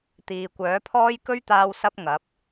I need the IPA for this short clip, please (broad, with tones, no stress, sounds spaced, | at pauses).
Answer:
t̪ iː˨ kʷ œː˨˥ pʰ ɔː˥ j k ɵ˥ ɥ t̪ aː˧ w s ɐ˧ p̚ ŋ ɐ˨˥ p̚